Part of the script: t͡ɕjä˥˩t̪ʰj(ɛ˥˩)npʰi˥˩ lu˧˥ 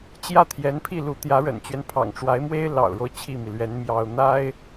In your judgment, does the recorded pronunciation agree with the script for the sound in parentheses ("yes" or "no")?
no